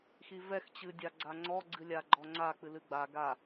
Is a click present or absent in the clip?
present